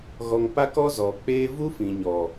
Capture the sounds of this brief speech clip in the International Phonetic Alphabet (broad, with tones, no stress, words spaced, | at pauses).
ɣɔ˧ŋpa˦kɔ˦ zɔ˨k͡peː˧ vu˦fĩ˨ɲɔ˨